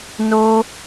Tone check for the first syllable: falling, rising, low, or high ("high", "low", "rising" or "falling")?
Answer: high